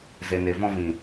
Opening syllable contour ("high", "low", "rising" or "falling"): low